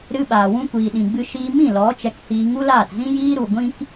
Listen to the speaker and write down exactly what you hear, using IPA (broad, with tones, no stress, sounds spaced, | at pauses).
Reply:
ɾ ɨ˧ ɓ aː˨ w ũ˧ kʷ iː˨ ɗ ĩ˨ ɡ͡b ɨ˧ ʃ iː˧ m ĩ˦˨ l ɔ˨˦ t͡ʃ ɛ˧ k h iː˧ ŋ u˦ l aː˦˨ t z ĩ˦ j iː˦ ɾ u˨ ɡʷ ĩ˦ k